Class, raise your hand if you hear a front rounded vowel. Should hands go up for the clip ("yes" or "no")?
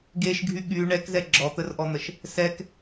yes